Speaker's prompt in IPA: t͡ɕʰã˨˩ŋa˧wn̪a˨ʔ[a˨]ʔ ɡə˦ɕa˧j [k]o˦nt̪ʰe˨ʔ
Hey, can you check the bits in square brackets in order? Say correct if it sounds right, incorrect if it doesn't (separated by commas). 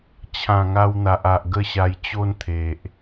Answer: correct, incorrect